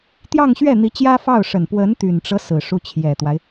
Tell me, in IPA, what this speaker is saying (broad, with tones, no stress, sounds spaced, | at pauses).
t̪ j ɑ˥˧ ŋ ɕ ɥ ɛ˥˩ n̪ i˧˥ t͡ɕ j ä˥ f ɑ˥˩ ʊ̯ ʂ ə˨˩ n p w ə˧˥ n t̪ y˨˩ n ʈ͡ʂ ɤ˦ s ɹ̩˨˩ ʂ u˧˥ t͡ɕʰ j ɛ˨˩ t̪ w a˦ ɪ̯